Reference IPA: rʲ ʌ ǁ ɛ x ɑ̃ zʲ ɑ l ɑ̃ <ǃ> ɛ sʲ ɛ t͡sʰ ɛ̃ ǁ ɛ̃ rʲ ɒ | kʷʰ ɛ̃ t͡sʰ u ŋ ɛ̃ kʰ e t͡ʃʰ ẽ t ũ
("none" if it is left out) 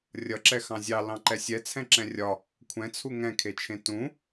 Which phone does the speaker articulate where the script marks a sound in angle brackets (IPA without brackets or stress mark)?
ǃ